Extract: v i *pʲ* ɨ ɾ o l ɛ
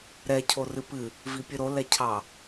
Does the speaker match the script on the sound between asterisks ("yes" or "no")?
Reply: yes